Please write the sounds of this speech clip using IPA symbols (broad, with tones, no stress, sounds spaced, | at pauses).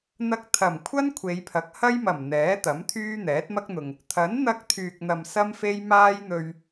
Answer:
n̪ ɐ˧ k̚ t̪ʰ ɐ˨˩ m kʷʰ ɐ˥ n kʷʰ e˨˧ j pʰ ɐ˨˥ k̚ h ɐ˥ j m ɐ˨˩ m n̪ ɛː˨˥ t̪ ɐ˨˥ m t̪ʰ yː˥ n̪ ɛː˨˥ t̚ m ɐ˥ k̚ n̪ ʊ˨ ŋ | t̪ʰ ɐ˨˥ n n̪ ɐ˧ k̚ t̪ʰ yː˨ k̚ n̪ ɐ˨ m s ɐ˥ m f e˥ j m aː˥ j n̪ ɵ˧ ɥ